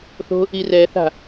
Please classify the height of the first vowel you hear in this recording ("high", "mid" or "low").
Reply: mid